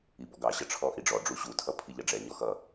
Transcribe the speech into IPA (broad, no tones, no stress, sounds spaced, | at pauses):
i b ɔ ɡ ɑ ɕ ʌ ʈ͡ʂʰ ɔ ʔ i ɖ͡ʐ ɔ ɖ͡ʐ u ɕ u tʰ ʌ pʰ i ʎ ʌ ɖ͡ʐ ɛ ɲ ɔ x ʌ